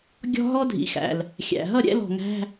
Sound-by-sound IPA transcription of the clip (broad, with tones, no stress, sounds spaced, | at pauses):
ɡʲ ɔ̤˥ ɦ ɔ˥ dʱ ḭ˨˩ x æ̰˨˩ l | xʲ æ̰˨˩ ɦ ʌ˥˨ ɾʲ ɛ̰˧˥˧ l ɔ̤˨˩ ŋ æ̤˧˥˧